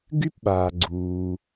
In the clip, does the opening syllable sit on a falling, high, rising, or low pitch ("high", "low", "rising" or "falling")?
high